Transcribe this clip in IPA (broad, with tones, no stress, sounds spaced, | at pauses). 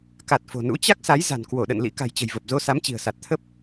k a˨˩ t̚ f o̤˨˩ n ṵ˧˥ t͡ɕ a˦˥ k̚ s a˨˦ j z a̤˨˩ n k w o˧˩ ɗ ə̰˧˨ n l ḭ˧˥ k a̤˨˩ j t͡ɕ ə̤˨˩ j v ə˨˩ p̚ z o˧ s a˨˦ m t͡ɕ i̤˨˩ ə̯ s a˨˩ t̚ t̪ʰ ə˦˥ p̚